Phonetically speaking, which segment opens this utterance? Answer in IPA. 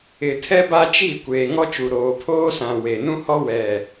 ɪ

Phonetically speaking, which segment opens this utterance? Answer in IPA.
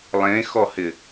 lˠ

